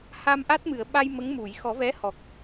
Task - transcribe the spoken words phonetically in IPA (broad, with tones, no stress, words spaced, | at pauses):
ha˧mʔa˦˥t̚mɨ˨˩˨ə̯ ɓa˧j mə˧˥ŋmu˨˩˨j xɔ˨˩˦vɛ˧˥hɔ˨˩k̚